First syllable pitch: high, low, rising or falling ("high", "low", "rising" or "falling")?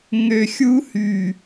low